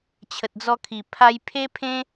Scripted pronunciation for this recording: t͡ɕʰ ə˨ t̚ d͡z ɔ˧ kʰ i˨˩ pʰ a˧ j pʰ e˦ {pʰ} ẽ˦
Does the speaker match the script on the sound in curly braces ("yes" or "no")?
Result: yes